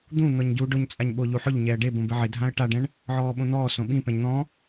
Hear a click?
no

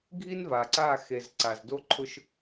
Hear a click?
yes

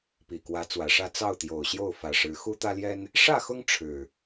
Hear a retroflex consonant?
yes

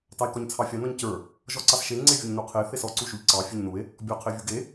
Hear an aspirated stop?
yes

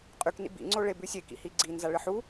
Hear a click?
yes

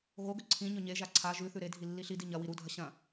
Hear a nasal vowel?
yes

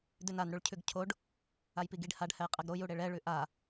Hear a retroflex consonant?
yes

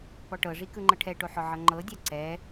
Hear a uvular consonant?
no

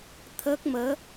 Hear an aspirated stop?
yes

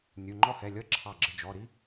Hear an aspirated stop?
yes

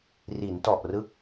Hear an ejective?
no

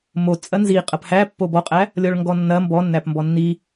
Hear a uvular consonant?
yes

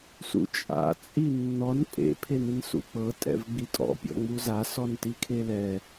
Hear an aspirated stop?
yes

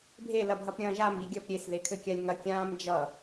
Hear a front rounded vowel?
no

